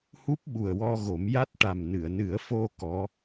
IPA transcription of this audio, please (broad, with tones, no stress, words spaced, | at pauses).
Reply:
hu˦˥p̚ɓu˨˩ə̯wɔ˧ɣo˨˩˦m ja˦˥t̚ʈa˨˩m nɨ˨˩˨ə̯nɨ˨˩˦ə̯fo˧ kɔ˧˥